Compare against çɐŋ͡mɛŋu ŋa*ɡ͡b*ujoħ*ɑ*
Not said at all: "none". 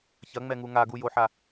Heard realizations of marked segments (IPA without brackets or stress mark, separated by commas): ɡ, a